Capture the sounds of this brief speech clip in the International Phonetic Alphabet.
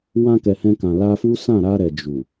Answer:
wã˧kɛ˨hɛ̃˧ kã˨la˧fu˦ sã˦˨ɾa˧ɾɛ˨ d͡ʒu˨

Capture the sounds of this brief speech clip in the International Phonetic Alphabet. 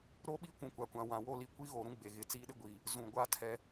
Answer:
ɾo˦ɓi˦ kʷũ˨kʷa˨kʷã˨ wã˨ wo˦li˦ kʷi˦ɣoː˨ɾũ˦ ɡ͡be˨ ɣɪ˨t͡siː˦ɗɪ˦ɡʷi˨ | zũ˨ɡʷa˦ tʰɛ˦

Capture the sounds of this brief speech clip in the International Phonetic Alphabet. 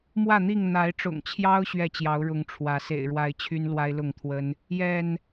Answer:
mwä˥˨n̪i˥˨ŋ n̪a˨˦ɪ̯ʈ͡ʂʊ̰˨˩ŋt͡ɕʰjɑ˦ʊ̯ ɕɥɛ˥˨t͡ɕjɑ˨˦ʊ̯ ɻʊ˨˦ŋ ʈ͡ʂʰwä˨˦ sḛ˨˩ɪ̯ɻwa˨˦ɪ̯ t͡ɕʰy˦n lwa˦ɪ̯lʊ˥˨ŋt̪ʰwə˦n | jɛ˥˨n

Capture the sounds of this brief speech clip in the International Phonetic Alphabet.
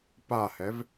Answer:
pahɛv

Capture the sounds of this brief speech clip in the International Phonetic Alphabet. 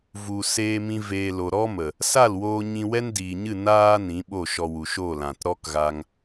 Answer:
vu˧ seː˧mĩ˧ veː˧lo˨ ɾɔ˦mə˨ | sa˦˨lwoː˧ ɲĩ˧wɛ˦ndiː˨ɲɨ˦˨ naː˦ nĩ˨˦ɓo˦˨ʃɔ˧ wu˨ʃo˦˨lã˨t ɾɔ˦kɣa˧ŋ

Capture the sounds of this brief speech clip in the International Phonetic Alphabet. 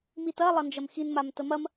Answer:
mitɐ lˠɐnd͡ʒɐmxin mamtəmɐm

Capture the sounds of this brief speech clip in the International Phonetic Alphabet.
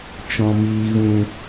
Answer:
t͡ʃɔ̃˨miː˨ ɣũ˨

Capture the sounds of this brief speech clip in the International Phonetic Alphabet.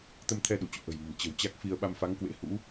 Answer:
t̪ə˧mt̪ʰɛ˧ ɗu˧˩t͡ɕṵ˧˨ʔə̤˨˩jmə̤˨˩m t͡ɕə̤˨˩wt͡ɕa˦˥k̚fi˧ə̯ ɓa˧mfa˨˦ŋkwḛ˧˥ hṵ˧˥

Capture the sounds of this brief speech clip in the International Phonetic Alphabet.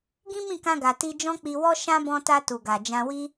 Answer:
ɡĩ˦mĩ˦˨kã˧ɡa˨ ti˧d͡ʒɔ̃˦k͡pi˧wɔ˦ ʃã˦ bɔ̃˧ta˧tu˨ ɡa˨d͡ʒã˧wi˦

